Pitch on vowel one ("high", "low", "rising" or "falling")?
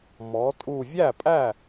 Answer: rising